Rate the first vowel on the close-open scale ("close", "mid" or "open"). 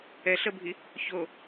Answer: mid